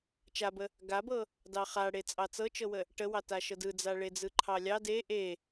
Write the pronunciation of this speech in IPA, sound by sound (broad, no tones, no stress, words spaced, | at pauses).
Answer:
t͡ʃabə | ɡabɤ | dɑχaɽe t͡sʼɑt͡sɤt͡ʃɤwə | ʈəwɑtaʃɤ dɯd͡za ɭed͡zɯǃʰɑlʲɑ de ʔe